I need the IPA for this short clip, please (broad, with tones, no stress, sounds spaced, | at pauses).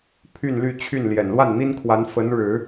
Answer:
pʰ y˥˧ n l y˥˧ t͡ɕʰ y˥˩ n l j ɛ˨˩ n l w a˥˩ n n̪ i˥ n kʰ w a˧˥ n f ə˧˥ n ɻ ɻ̩˨˩˦